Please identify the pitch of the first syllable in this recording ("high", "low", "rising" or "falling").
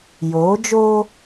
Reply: rising